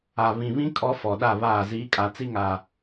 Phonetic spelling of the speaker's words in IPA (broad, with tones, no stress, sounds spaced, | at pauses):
a˨ β ĩ˨ β ĩ˦ kʼ ɔ˦ f ɔ˨ ɗ a˦˨ β aː˦˨ z iː˨˦ kʼ a˨ t͡s i˦ ŋ a˨